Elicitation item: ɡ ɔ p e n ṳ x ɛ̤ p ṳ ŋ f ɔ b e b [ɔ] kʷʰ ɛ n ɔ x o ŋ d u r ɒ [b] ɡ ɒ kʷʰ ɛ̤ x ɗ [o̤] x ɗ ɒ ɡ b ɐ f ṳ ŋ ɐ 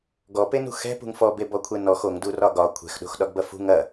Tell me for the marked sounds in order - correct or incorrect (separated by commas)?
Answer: correct, incorrect, correct